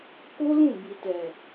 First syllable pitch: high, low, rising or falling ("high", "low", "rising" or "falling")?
high